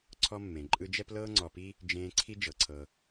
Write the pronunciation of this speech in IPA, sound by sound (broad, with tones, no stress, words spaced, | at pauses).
ǀʰɔ˦mːẽ˩ ǃʼɯ˦d͡ʒɛ˥plɤː˥ ŋ͡ǀɔ˨pi˥ | d͡ʒẽː˦ǀʰi˥ d͡ʒɤ˩ǀʰɤ˨